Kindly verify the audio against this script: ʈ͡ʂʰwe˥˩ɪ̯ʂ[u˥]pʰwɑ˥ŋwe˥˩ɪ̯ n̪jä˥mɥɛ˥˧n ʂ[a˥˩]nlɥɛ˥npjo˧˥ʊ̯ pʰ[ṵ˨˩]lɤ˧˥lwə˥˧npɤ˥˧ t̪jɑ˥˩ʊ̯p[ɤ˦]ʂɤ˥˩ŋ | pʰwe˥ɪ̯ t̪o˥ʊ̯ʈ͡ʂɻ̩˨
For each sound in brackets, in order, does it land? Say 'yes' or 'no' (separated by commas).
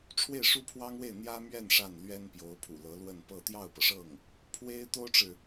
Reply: yes, yes, yes, no